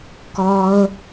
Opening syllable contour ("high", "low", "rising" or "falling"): low